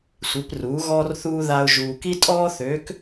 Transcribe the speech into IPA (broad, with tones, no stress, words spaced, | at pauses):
sʷi˩˧pruː˩˧ɣɔː˧rθuː˧ ða˧ʊ̯ ʒuː˩ki˧tʼɔː˧θøː˩˧k